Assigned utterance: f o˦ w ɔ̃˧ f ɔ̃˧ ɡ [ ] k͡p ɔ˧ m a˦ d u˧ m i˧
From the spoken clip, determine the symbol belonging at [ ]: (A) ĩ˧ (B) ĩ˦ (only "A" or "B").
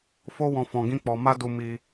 B